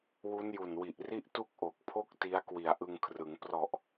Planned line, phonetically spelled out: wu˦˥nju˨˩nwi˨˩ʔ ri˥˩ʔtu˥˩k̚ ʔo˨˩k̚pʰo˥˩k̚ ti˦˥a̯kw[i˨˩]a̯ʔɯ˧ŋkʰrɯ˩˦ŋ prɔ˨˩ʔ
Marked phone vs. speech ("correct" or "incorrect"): correct